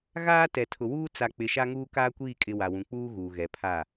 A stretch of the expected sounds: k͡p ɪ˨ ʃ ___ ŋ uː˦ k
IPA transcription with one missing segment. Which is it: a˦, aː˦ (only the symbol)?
a˦